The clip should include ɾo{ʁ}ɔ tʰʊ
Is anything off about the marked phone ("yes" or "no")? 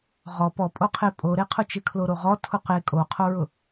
no